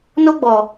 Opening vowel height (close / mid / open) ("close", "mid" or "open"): mid